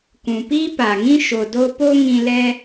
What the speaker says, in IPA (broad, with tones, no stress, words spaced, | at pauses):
kũ˨piː˦pa˨ŋĩ˦ ʃo˨do˦ po˦ŋĩ˧ lɛ˦